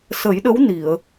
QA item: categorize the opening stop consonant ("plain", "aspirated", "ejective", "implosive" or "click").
implosive